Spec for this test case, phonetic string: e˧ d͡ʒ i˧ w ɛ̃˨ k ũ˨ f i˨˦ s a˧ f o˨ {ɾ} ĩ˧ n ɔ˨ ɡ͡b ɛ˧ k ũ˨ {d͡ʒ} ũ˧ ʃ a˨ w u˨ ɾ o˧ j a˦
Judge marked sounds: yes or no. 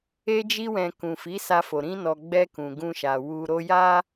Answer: yes, no

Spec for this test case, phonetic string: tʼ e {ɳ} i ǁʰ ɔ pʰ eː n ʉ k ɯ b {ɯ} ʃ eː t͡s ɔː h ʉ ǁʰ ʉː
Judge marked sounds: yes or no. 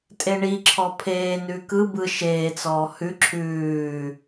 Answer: yes, yes

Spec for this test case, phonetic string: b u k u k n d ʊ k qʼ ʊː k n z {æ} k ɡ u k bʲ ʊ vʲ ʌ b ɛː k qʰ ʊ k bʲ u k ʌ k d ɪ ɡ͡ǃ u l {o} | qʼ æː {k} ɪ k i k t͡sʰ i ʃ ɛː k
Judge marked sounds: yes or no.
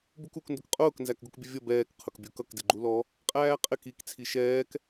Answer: yes, no, no

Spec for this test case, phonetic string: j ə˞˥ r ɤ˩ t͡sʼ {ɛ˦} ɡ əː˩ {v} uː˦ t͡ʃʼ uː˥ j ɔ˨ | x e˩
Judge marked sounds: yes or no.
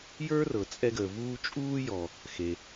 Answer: yes, yes

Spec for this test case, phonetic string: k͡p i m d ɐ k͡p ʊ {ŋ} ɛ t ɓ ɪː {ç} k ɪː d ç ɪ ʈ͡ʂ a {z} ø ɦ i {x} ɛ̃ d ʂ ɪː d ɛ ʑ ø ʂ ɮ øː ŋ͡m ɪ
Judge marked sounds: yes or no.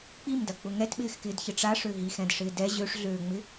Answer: yes, no, no, yes

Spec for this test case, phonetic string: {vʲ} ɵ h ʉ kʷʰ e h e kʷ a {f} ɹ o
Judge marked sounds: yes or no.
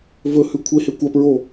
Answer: no, no

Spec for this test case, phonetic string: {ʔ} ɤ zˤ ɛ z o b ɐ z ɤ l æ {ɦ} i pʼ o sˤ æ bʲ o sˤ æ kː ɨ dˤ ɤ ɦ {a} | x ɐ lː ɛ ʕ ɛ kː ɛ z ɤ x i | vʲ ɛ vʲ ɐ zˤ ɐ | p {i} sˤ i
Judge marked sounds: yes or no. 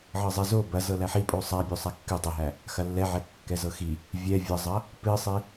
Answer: no, no, no, no

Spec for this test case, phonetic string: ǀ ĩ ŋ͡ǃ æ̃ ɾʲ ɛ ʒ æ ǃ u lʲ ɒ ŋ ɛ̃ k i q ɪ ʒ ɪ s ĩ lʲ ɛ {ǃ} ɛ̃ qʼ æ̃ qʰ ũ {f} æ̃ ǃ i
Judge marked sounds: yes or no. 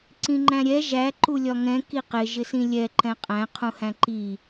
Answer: yes, no

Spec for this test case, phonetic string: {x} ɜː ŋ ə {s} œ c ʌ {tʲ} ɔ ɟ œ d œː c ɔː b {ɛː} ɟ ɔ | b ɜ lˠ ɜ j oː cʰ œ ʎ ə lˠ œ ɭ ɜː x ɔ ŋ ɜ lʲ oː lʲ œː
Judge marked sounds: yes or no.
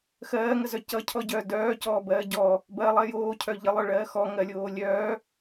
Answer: yes, no, no, no

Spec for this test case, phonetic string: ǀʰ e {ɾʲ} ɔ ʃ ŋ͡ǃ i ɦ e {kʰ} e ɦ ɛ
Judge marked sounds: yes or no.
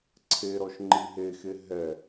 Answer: no, no

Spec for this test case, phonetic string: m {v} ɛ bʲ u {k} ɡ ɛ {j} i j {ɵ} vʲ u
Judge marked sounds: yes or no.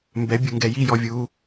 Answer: no, no, yes, no

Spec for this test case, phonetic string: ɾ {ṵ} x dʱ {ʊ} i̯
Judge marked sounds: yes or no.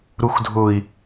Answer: no, yes

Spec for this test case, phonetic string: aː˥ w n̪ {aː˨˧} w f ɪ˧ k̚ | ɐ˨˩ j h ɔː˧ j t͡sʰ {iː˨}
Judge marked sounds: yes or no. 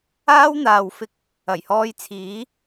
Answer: no, no

